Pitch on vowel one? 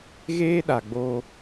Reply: high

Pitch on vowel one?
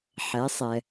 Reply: rising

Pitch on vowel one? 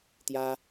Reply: high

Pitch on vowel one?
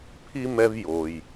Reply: high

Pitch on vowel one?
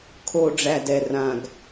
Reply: low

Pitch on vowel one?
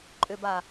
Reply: low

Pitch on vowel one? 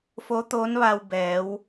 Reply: rising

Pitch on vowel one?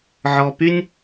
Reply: low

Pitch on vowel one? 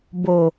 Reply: low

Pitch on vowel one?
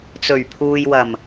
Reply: low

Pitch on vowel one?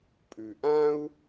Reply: low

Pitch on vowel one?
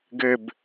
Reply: falling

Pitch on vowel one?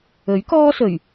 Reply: rising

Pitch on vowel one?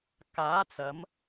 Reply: rising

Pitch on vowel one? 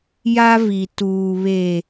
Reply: high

